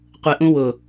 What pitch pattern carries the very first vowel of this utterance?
low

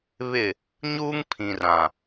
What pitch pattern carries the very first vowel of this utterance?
falling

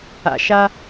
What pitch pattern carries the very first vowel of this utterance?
low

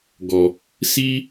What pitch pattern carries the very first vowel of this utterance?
low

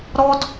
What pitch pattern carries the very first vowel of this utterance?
high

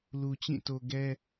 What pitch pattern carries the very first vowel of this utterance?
low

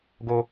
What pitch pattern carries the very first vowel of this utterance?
high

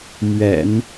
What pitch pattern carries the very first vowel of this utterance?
low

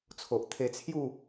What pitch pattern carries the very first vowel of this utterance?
low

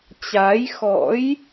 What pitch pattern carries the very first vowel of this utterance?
rising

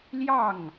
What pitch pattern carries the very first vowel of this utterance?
falling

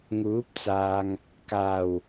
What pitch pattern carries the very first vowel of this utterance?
rising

